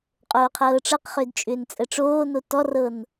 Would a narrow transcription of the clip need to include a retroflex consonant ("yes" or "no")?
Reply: yes